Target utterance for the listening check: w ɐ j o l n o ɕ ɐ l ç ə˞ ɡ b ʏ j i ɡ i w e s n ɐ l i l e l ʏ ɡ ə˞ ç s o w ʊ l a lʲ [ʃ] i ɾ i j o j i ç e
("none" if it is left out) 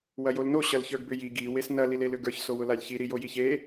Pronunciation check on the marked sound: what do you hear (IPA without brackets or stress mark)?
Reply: ç